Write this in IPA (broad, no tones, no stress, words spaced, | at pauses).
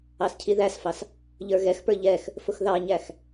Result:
ɑscʰiðæsfɑs | ʎə˞ɣɛxpə˞ ʎɛx | fʊxðɑɲæx